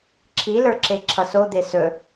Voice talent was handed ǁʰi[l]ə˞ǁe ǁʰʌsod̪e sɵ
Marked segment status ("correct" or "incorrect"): correct